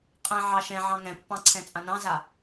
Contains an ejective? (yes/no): yes